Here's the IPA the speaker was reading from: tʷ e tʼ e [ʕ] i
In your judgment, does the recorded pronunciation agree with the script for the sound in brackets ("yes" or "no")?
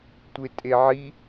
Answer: yes